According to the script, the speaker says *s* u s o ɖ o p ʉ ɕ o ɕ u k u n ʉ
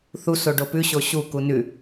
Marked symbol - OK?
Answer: no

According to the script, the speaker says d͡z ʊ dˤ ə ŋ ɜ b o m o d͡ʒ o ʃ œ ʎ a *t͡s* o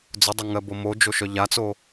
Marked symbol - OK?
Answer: yes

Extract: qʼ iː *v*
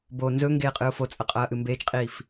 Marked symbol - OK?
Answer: no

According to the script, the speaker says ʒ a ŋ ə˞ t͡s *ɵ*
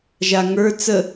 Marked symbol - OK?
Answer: no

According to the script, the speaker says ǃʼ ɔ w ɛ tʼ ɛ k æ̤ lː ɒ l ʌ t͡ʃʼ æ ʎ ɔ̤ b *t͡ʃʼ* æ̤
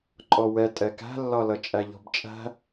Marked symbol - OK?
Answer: yes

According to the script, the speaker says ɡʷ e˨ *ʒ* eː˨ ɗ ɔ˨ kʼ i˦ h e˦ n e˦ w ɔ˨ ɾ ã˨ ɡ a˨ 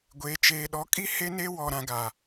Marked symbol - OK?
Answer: no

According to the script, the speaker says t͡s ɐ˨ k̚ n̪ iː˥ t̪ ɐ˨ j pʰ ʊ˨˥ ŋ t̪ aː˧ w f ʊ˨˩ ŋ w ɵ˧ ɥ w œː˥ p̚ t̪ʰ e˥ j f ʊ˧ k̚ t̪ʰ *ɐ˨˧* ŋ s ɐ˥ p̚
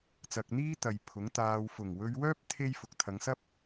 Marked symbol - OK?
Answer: yes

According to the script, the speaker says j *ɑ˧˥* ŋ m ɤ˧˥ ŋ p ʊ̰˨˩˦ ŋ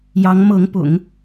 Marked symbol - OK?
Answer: yes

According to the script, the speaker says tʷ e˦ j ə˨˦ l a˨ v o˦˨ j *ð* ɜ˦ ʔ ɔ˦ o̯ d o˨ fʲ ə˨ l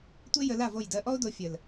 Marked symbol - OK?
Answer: no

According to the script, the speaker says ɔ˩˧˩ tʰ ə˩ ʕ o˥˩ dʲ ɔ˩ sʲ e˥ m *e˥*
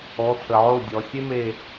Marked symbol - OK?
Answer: no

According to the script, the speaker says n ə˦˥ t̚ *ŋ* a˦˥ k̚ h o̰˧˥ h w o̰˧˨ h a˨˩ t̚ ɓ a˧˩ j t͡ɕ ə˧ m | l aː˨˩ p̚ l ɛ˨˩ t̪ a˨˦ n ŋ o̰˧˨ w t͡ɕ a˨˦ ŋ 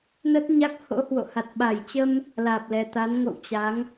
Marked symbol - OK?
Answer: no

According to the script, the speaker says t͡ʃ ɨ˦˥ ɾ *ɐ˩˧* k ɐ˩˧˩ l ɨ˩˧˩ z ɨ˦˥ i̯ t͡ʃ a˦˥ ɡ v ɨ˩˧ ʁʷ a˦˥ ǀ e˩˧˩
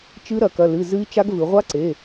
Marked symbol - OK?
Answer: yes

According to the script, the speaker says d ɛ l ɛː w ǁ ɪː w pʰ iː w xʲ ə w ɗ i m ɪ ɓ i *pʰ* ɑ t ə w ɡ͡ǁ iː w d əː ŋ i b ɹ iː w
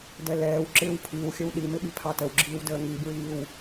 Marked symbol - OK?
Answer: yes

